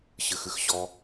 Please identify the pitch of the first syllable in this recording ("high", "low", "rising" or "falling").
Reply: low